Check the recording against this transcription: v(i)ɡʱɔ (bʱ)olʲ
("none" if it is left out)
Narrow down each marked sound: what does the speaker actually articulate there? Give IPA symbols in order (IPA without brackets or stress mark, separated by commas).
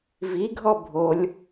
i, bʱ